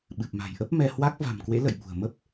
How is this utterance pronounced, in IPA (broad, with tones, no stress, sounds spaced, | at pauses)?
ɓ ɨ˨˩ p̚ m a̤˨˩ j ʔ ə˦˥ p̚ m ɛ˧ h w a˦˥ k̚ v a̤˨˩ m k w ḛ˧˥ l ə̰˧˨ j ɓ ṳ˨˩ ə̯ m ə˦˥ p̚